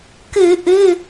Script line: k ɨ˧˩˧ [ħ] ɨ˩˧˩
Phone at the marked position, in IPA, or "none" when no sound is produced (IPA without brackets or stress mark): ʔ